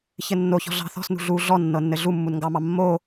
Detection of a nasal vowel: absent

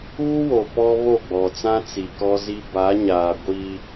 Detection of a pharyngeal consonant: absent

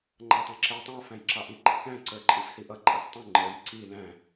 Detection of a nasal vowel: present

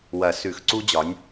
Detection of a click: present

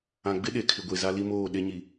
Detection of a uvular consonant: absent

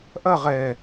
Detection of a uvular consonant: present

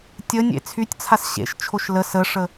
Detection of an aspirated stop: present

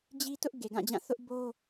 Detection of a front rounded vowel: absent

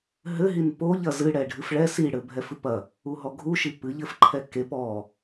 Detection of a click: present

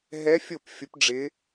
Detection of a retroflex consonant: present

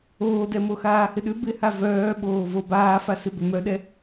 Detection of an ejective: absent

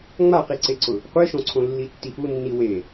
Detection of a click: present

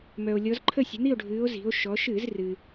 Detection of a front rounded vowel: present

